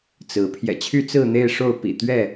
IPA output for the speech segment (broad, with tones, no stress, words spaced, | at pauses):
t͡sɹ̩˨˦ pʰjɛ̰˨˩t͡ɕʰy˥˨ t͡sɹ̩˥˨n̪e˥˨ɪ̯ʂo˥˨ʊ̯ pḭ˨˩ t̪ɥɛ˥˨